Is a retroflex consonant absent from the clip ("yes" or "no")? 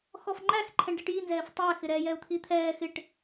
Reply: no